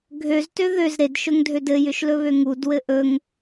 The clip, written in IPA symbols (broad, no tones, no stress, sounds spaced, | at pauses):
ɡʱ ø z t ø ð ø z ɾ e d ʃ ɵ ŋ dʱ ø d ɘ j ʏ ʃ l ɵ β ø ŋ u d w ɘ ʔ ɵ ŋ